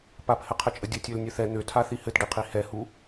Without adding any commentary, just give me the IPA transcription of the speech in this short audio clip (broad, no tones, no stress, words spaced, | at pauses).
paphɘqʰɘt͡ʃʼə dʲɘtʲølnʲøθ ɛ n̪øtʰaθi hɘtɖiqʰi hɛhu